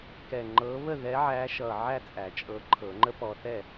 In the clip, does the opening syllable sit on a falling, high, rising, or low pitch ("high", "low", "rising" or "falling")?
low